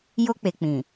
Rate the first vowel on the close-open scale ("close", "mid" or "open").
mid